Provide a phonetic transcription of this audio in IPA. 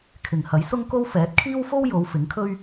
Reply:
kʰ ɪ˨ ŋ h ɐ˨˥ j s ʊ˥ ŋ k o˥ w f ɛː˨˥ t̚ kʰ iː˥ w f o˥ w j o˨˧ w f ɪ˨˥ ŋ kʰ ɵ˥ ɥ

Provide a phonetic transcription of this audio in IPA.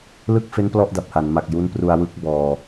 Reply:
l ɯ˥˩ k̚ f e˦˥ n p l ɔ˥˩ ʔ d a˨˩ p̚ h a˩˦ n m a˨˩ k̚ j u˦˥ n p r u˧ a̯ w ɯ˦˥ k̚ b ɔː˧

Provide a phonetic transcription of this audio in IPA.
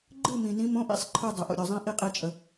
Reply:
ɡ͡ǃ ɨ˥˧ m ĩ˨ n ĩ˦˥ m õ˧˥˧ ʔ ḭ˦˥ sˤ ǃʰ ɯ˥˧ dˤ ə˨˩˦ ʔ o̰˨ ɾʲ o˨ zˤ ĩ˦˥ ʔ i˥˧ qʼ i˥˧ t͡ʃʼ ə˨

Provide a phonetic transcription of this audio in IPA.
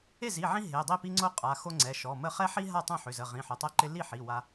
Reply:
e˥˩ z i˩˧˩ ʕ ĩ˦ ɦ e˩˧˩ dˤ i˥˩ p i˦ ŋ͡ǀ o˦ qʼ a˩˧˩ x o˦ ŋ͡ǀ ɛ˩˧˩ ʃ ɔ˩˧˩ m ə˥˩ χ ɛ˦ ħ i˦ ɦ a˥˩ tˤ õ˥˩ ħ ʏ˩˧˩ z ə˩˧˩ ʁ ĩ˩˧˩ ħ ʏ˩˧˩ tˤ ɛ˦ ǃ ɪ˦ l i˥˩ ħ i˩˧˩ w a˦

